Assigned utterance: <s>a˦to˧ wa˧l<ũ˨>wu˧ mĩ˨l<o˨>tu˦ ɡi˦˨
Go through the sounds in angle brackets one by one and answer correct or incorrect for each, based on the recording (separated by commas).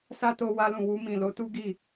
correct, correct, incorrect